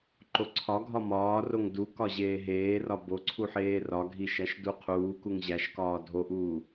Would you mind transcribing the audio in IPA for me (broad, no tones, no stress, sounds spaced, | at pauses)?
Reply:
ǃ o ǀʰ ɒ ɡʱ ɒ m ɒː r o ŋ d u k ɒ ʑ eː ɦ eː r ɒ b o ǀʰ u ħ eː r ɒ ɡʱ i ʃ æ ʃ d u qʰ uː k u ŋ ʑ æ ʃ k ɒː dʱ o ʔ uː